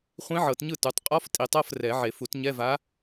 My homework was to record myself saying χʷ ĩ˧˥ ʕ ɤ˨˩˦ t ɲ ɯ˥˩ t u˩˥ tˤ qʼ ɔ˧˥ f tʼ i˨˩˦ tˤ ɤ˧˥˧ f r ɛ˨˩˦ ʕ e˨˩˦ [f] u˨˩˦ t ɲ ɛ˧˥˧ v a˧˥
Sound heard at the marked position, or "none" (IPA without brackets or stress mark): f